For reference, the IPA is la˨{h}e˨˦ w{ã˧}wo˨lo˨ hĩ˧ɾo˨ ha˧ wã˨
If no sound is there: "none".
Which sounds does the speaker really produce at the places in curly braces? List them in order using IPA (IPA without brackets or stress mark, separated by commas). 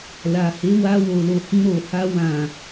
h, a˧